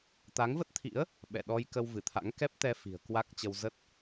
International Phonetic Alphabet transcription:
t̪ a˨˦ ŋ v ə˦˥ t̚ t̪ʰ ḭ˧˥ ə̯ | ɓ ɛ̰˧˨ ɗ ɔ˧ j k ə˧ w v ɨ˧˩ t̪ʰ a̰˧˥ ŋ k ɛ˦˥ p̚ t̪ ɛ˧ f i̤˨˩ ə̯ k w a˦˥ k̚ t͡ɕ ə˧ w z ə˦˥ t̚

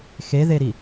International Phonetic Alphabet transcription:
x e ð e ɾ i

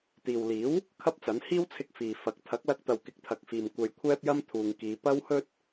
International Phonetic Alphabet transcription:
t̪ iː˨ w l iː˨˥ w | kʰ ɐ˥ p̚ t͡s ɐ˨˥ n h iː˥ w t͡sʰ ɪ˧ k̚ f iː˨ f ɐ˨˥ k̚ t̪ʰ ɐ˨˥ k̚ l ɐ˧ k̚ t̪ ɐ˨ w k ɪ˨˥ k̚ t̪ʰ ɐ˨ k̚ f iː˨ m kʷ ɐ˧ j kʷʰ ɛː˥ p̚ j ɐ˥ m t̪ʰ uː˨ ŋ k iː˨˧ p ɐ˥ w h ɵ˥ t̚

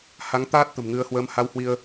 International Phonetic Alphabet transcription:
h a˨˦ ŋ t̪ aː˦˥ t̚ t̪ ə̤˨˩ m ŋ ɨ˧ ə̯ h w əː˧ m h a˧ w h w i˧ ə̯

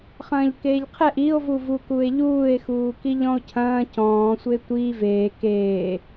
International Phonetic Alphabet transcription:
χ ɐ̃ː ʎ k eː ʎ qʰ ɛ ʔ i o̯ v u v u k u e̯ ʎ uː e̯ x uː k i ʎ ɔ̃ o̯ cʰ ɐ̃ː c ɔ̃ː sʷ e tʷ i v eː k eː

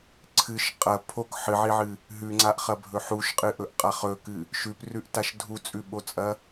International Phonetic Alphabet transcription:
ǀʰ ɨ ʃ qʼ ɐ pʰ o k ħ ɨ ʕ i ʕ ɨ | ɦ ʉ ŋ͡ǀ a ʔ χ ɐ bʱ ɵ ħ u ʃ qʼ ɨ ʔ ɵ ʔ qʼ a χ ɵ k ɨ | ʃ ʉ p r ʉ ʔ t a ʃ dʱ u t͡sʼ ʉ ɓ o t͡sʼ ɐ

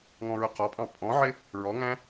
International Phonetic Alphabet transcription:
ŋ ɔ̃ ɹ ʊ q ɒ pʼ ɑ̃ pʼ ɔ̃ ʕ ɪ | ɹ ɔ ŋ æ̃

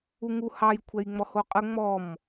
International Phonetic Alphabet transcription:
u ŋ u h ɑ j kʷʰ ɛ j ŋ͡m ɔ h o qʼ ə ŋ͡m ɔ m

